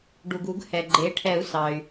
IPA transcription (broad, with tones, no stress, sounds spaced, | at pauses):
ɖ u˩ ɡ u˨˩˦ ɡ h ɛ˩ ɡ͡ǃ e˩˥ ʈʰ ɛ˨˩˦ u̯ s ɑ˩ y̯